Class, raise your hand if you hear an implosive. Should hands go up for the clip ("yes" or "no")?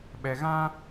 yes